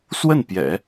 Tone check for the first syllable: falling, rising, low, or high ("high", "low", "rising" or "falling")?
falling